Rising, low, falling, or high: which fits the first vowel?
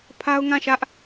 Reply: high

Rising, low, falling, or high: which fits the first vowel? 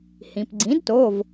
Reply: low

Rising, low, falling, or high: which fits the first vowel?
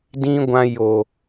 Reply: high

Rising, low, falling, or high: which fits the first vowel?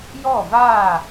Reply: falling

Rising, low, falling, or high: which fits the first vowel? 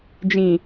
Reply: low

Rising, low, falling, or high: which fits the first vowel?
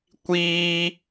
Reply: high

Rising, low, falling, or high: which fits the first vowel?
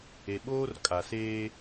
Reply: low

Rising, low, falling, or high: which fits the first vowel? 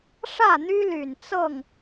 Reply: falling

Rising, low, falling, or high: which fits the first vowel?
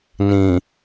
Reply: low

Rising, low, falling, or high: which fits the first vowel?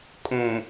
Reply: low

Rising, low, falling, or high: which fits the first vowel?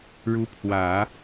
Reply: rising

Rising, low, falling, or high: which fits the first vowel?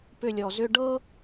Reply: falling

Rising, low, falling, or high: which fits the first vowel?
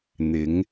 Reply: rising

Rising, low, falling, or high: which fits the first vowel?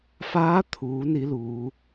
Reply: rising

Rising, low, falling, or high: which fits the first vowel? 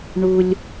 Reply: high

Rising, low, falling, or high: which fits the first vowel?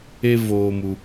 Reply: high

